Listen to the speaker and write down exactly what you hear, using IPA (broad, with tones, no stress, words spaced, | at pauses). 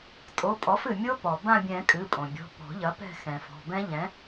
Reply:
tʼo˩˧˩pʼɔ˩˥fɨ˩ mʲo˦˥ pɔ˩ bã˦˨bʲɛ̃˨˩˦ kʼɨ˩˧˩pʼõ˩bʲɔ̤˩˧˩ pɔ̤˨˩˦ʎɐ˩˥pɛ̤˦˨ xɛ̃˩fɔ̤˩˧˩ bɛ̃˦˥ʎɛ̃˩˥